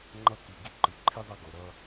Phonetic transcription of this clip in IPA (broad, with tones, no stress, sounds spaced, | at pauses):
ŋ͡ǃ ʌ˦ k i˧ ɡ i˦ ǃ ɯ˧ ǃʰ i˦ ðˤ ʌ˦ ɡ o˧ ɾ ʌ˦